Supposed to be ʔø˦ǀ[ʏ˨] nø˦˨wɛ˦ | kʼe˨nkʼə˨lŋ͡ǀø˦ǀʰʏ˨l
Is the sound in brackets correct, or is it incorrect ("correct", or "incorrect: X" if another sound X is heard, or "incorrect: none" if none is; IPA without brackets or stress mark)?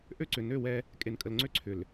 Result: correct